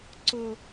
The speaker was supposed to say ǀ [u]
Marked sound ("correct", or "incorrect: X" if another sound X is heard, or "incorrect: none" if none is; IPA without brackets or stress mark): incorrect: ʊ